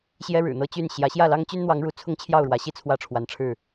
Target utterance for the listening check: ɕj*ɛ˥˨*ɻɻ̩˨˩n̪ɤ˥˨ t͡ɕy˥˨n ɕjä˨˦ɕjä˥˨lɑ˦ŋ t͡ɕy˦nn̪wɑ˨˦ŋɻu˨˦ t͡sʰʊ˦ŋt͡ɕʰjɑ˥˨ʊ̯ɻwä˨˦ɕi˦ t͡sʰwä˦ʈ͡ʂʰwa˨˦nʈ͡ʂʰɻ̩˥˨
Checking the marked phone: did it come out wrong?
yes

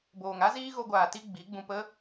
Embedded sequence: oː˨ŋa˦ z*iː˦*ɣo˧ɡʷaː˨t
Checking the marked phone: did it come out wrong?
no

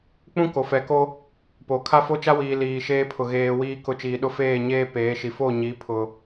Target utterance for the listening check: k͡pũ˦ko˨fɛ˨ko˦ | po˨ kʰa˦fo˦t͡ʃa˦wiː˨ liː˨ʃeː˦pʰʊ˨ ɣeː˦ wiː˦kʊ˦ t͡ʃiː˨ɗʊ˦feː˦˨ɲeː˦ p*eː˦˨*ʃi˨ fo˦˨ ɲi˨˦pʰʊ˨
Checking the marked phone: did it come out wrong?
yes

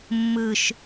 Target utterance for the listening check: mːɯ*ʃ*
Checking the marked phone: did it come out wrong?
no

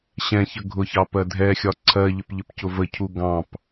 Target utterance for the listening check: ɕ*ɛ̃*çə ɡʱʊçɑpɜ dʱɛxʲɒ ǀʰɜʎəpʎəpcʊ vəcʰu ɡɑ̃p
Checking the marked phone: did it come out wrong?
no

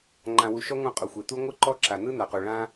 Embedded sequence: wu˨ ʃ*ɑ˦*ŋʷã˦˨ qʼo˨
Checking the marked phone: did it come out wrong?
yes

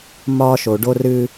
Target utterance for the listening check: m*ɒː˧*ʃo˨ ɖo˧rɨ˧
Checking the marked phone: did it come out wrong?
no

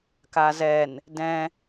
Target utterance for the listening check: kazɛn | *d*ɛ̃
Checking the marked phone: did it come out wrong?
no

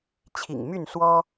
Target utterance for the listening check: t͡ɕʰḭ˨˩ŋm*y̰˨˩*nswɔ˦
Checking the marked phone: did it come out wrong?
yes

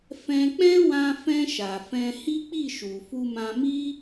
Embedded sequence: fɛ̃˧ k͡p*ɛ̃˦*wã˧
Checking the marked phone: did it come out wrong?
no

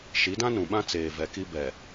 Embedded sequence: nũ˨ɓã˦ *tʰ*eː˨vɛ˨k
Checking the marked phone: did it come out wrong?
yes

